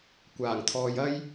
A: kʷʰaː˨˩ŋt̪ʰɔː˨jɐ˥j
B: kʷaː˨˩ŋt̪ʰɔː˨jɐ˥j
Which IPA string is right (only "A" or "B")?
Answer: B